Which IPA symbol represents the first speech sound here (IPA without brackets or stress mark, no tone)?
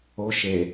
o